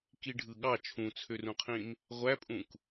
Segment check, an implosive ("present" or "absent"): present